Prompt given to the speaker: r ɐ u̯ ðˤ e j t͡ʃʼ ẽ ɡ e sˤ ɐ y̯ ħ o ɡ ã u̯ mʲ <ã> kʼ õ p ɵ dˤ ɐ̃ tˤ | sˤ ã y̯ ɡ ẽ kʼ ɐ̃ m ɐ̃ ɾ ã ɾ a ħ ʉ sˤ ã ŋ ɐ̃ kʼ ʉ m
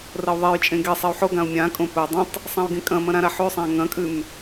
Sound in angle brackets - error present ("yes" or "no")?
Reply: no